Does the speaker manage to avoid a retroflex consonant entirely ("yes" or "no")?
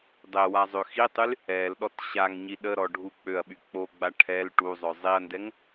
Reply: no